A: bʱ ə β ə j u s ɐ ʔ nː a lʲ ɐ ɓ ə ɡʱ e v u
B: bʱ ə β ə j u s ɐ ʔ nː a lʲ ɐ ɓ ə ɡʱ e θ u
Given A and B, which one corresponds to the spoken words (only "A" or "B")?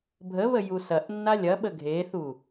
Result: B